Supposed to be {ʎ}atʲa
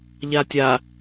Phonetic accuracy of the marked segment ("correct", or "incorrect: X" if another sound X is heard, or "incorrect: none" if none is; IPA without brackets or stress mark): correct